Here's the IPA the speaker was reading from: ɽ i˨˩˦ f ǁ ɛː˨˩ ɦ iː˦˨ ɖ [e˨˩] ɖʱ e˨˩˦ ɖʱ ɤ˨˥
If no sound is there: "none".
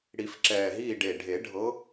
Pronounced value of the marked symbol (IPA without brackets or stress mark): e˨˩